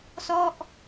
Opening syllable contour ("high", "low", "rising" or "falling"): falling